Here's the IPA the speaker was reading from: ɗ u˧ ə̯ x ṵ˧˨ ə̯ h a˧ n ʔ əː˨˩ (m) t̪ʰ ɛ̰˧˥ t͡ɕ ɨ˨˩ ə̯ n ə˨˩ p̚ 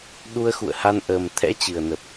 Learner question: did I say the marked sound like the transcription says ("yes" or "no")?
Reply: yes